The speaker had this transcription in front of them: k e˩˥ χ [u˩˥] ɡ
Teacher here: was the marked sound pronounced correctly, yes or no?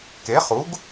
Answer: yes